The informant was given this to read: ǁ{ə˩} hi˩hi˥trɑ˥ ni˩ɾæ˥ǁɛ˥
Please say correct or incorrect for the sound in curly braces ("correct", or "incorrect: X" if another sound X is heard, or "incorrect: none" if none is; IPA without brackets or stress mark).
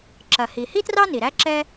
incorrect: ɐ˩